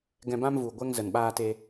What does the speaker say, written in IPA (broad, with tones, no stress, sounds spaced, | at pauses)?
ɡ ɛ̃˧ b ã˦ m v u˨ ɡʷ ɛ˧ ŋ z ə˨ n ɓ aː˧ t e˧